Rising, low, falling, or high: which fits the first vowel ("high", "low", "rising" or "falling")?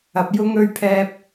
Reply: low